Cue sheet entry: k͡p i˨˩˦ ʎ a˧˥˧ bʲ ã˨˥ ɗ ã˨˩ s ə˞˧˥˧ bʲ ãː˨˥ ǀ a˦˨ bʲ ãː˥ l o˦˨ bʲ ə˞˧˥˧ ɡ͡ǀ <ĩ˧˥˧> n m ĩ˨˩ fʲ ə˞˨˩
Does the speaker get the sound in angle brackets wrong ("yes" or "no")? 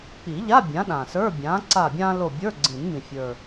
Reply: yes